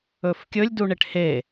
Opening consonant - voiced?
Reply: no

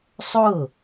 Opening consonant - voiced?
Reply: no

